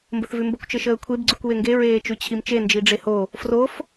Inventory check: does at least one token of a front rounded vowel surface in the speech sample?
no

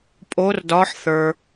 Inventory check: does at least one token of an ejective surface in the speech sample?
yes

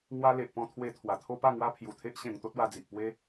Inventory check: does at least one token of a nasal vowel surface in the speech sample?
yes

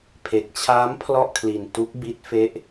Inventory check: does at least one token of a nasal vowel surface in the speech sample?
no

